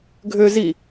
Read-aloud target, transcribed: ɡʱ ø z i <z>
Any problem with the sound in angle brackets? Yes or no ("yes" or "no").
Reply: yes